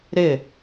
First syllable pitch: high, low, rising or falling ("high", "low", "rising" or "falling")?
falling